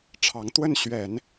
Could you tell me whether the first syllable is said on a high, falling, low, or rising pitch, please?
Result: rising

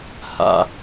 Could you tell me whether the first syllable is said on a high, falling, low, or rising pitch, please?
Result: falling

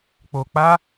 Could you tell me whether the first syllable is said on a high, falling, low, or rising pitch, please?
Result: low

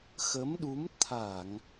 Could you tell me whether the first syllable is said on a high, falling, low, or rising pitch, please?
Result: rising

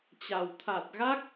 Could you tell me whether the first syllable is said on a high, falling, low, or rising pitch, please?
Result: low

